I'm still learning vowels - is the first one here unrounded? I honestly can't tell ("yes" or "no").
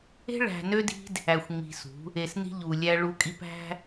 yes